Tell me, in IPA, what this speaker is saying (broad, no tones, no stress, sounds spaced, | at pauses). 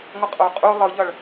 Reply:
ŋʷ ʌ qʼ o qʼ u lˠ ɯ ʎ ʌ ɭ